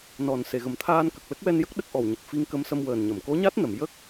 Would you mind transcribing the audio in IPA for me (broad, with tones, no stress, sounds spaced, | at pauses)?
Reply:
n ɔ˨˩ n s e˨˩˨ ɣ ə˨˩ m t̪ʰ aː˧ n k ə˨˩ k̚ l ə˦˥ k̚ w ɛ˧ n j ə˦˥ k̚ ɗ ə˦˥ k̚ ʔ ɔ˨˩ w ɲ ə˨˩ k̚ f i˧˥ ŋ k ə˧˥ m s ə˧ m w əː˨˩ n ɲ ə˨˩˨ m k o˧˥ ɲ a˦˥ t̚ n ə˨˩˨ m j ə˦˥ k̚